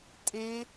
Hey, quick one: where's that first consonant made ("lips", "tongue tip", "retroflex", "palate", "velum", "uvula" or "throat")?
tongue tip